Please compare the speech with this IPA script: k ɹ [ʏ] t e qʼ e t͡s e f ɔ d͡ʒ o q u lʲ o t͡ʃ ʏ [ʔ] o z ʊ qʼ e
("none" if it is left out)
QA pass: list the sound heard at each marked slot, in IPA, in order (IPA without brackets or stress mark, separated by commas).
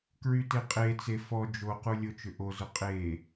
y, ʔ